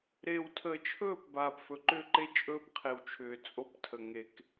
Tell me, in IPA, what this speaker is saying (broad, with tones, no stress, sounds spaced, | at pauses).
ɾ eː˨ w tʰ əː˨ t͡ʃʰ ɵː˦˨ p b aː˨ p f ɵ˨ ǃ ʏː˦ ǃ e˦ t͡ʃʼ ɵː˦ p qʰ e˨ w t͡ʃʰ ʏː˨ t͡sʼ o˦ p tʰ ə˨ ŋ e˨ k